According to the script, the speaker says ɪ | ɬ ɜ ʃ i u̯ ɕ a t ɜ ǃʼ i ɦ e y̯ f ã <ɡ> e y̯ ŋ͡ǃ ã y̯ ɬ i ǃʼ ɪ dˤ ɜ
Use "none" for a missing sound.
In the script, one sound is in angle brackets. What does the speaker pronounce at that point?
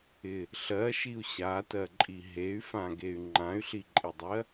ɡ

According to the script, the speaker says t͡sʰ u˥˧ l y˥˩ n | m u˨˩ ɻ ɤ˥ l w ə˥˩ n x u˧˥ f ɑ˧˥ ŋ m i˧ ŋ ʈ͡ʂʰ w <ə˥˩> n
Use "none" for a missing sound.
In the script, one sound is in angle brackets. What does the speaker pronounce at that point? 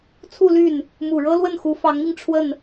ə˥˩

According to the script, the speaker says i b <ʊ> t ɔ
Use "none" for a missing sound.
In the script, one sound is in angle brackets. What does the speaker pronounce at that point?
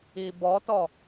ɔ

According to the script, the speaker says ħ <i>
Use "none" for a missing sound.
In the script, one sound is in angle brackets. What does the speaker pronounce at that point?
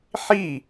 i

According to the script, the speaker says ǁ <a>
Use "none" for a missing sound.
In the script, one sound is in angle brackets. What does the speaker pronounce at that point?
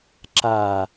a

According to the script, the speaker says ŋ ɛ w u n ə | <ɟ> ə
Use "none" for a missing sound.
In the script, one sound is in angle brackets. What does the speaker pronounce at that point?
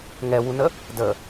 d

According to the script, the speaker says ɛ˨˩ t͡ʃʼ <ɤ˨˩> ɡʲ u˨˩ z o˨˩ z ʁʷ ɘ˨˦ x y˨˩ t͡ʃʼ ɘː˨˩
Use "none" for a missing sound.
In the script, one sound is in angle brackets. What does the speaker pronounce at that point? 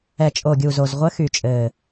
o˨˩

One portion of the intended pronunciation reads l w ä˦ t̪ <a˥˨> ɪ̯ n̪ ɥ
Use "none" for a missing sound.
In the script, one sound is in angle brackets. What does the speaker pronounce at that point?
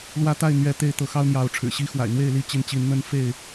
a˥˨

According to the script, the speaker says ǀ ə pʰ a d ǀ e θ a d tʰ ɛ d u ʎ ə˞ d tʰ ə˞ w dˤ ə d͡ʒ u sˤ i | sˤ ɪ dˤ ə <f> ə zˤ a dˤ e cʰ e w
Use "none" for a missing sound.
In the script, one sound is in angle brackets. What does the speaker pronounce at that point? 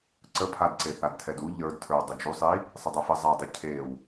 f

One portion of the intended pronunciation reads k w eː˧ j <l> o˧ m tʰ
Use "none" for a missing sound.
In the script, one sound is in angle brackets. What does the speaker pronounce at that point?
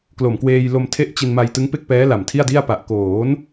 l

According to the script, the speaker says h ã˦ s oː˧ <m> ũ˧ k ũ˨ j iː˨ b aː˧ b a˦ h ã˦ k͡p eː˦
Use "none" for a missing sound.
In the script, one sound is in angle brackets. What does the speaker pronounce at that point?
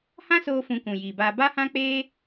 f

